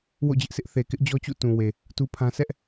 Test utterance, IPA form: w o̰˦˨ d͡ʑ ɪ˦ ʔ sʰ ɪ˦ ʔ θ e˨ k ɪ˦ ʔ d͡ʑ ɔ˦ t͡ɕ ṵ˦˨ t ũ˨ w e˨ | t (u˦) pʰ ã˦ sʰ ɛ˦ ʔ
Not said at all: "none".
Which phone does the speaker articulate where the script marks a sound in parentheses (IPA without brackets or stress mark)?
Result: u˦